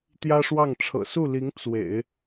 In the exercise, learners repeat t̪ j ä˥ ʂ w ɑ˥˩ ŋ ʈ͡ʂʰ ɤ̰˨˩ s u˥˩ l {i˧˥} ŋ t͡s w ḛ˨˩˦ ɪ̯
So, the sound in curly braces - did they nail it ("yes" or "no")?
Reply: yes